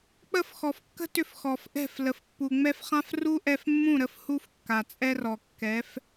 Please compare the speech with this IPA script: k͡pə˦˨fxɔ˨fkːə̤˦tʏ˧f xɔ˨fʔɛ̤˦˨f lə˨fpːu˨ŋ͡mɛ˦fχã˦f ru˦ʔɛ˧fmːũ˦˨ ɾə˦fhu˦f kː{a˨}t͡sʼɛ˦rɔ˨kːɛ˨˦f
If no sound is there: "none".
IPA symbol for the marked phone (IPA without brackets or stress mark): a˨